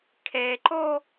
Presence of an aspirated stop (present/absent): present